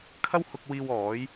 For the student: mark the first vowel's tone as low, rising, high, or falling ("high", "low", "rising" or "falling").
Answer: high